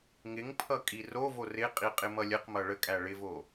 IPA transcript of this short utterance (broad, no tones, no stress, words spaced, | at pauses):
ŋɪŋpʰʌ kʼirovo rɪqʼi qʼɪmʌlʲəqmʌ ɭəkʼæ ɭɪvo